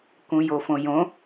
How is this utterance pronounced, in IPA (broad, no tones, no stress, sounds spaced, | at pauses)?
k ũ j o f õ j õ